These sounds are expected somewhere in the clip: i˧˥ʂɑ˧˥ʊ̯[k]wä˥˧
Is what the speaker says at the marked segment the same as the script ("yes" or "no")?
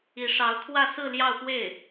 no